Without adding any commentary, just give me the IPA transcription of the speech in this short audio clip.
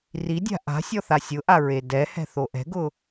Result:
r i dʲ a̤ ʔ a̤ sʲ ɔ θ a sʲ ʊ ʔ a ɹ e d ɛ h ɛ̤ θ o ʔ ɛ̤ ɡ ʊ

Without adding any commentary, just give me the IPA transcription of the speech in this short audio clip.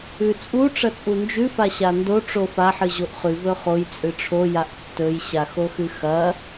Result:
ʉ t͡sʼ u ʈ͡ʂ ɐ t͡sʼ u n d͡ʒ ʉ f a ɕ a n d o ʈ͡ʂ o f a ħ ɨ ʑ o ʔ χ ʉ v ɵ χ o j t͡sʼ ɨ ʈ͡ʂʰ o j a ʔ tː ɵ j ɕ a x o x ɨ x ɐ

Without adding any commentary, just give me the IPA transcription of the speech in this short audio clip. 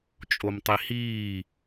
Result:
t͡ʃʼ o m tˤ i h iː

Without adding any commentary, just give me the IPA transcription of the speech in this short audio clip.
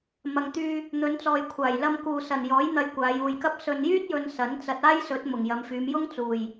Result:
m ɐ˨ ŋ t̪ yː˧ | n̪ ɵ˨˧ n t͡s ɔː˨ j kʷʰ aː˨˩ j l ɐ˧ m k uː˨ s ɐ˨˩ n j ɔː˨˥ j n̪ ɐ˧ j kʷ aː˨˧ j uː˨ j k ɐ˥ p̚ s ɵ˨ n j yː˥ t̚ j ɵ˨ n s ɐ˨˥ n t͡s ɐ˧ t̚ aː˥ j s ɵ˨˥ t̚ m ʊ˨˩ ŋ j ɐ˨˧ m f yː˨˧ m j ʊ˥ ŋ t͡s uː˨˩ j

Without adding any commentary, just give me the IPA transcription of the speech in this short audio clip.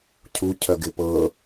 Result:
cʰ u cʰ œ ɡ ɪ p ɤ

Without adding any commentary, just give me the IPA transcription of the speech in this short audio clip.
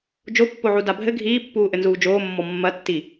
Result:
d͡ʒ o pː o ʕ u d a bʱ ɘ ɡʱ iː pː uː ʔ ɘ n z uː d͡ʒ oː mː ɔ mː ɐ tː i

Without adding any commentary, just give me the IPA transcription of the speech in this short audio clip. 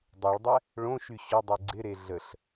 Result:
dˤ u ɭ dˤ ɛ | ɭ õ ʃ y ɕ ʊ dˤ i ɡ͡ǀ ɪ ɾ e ɮ ə ɬ

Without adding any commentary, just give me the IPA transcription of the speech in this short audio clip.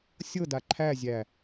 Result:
sʲ ɤ d a ǃʰ æ zʲ æ

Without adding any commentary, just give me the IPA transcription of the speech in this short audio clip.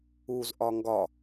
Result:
u z ʔ ɒ ŋ ɡ ɒ

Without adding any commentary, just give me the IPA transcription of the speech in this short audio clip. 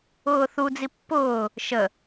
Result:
ʊː θ u d͡z i pː ʊː | ʃ ə

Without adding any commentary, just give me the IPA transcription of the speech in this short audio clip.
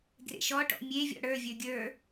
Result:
ɡ r ḛ ʃ ɔ ʈ ɔ̰ mʲ e vʲ ɔ̰ ɽ ə˞ vʲ ə˞ ɡʲ ə˞

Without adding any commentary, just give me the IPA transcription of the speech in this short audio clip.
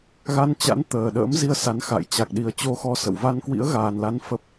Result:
ɣ a˧ n t͡ɕ a̰˧˥ n t̪ əː˨˩ ɗ ə̰ː˧˥ m z i˧ ə̯ s a˨˦ n x a̰˧˨ j t͡ɕ a˨˩ k̚ ɗ i˨˩ ə̯ t͡ɕ o˧ x ɔ˧ s ə̰˧˨ w v a˧ n k w ḭ˧˥ ə̯ ɣ aː˨˩ n l a˨˦ n f ə˦˥ p̚

